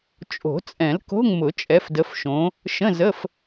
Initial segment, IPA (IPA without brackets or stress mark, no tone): t͡ʃʼ